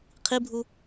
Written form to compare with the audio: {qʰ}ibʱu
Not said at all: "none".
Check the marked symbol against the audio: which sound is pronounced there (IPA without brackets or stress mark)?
qʰ